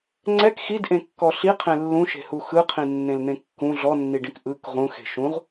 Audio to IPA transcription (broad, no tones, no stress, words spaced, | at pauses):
ŋ͡ǀɛk xidʔẽkːɔ ɬiqʰẽ lːũʃe̤hu xɯqʰĩnːẽln̪ẽ kːũ ɮɔnːiɖĩk ʔɯk ʁũxe̤ ʃũʁ